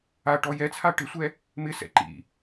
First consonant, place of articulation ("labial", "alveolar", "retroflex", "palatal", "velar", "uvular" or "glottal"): retroflex